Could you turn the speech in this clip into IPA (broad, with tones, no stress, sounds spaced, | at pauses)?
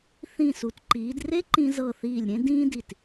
θ ĩː˧˩ s u˩˧ t ǃ iː˩˧ d r e˥ ǃ ĩ˧ z ɤ˧˩ θ iː˧˩ lʲ ɾʲ ẽ˥ d ĩː˥ d i˧˩ t